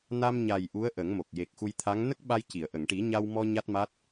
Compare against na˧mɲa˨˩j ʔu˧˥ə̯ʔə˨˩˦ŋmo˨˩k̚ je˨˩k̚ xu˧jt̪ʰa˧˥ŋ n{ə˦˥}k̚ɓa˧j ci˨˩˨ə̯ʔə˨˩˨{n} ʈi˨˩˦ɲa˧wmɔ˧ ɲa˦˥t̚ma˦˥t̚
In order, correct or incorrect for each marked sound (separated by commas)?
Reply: correct, incorrect